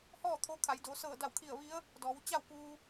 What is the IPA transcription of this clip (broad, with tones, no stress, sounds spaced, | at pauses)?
h ɔː˥˨ t̪ʰ o˧ kʰ a˩˧ j d o˩˧ s ɤː˧˩ d a˧˩ w kʰ i˧˩ ə̯ ʋ i˧˥ ə̯ | d ɔː˩˧ w t͡ɕ a˥˨ w k uː˧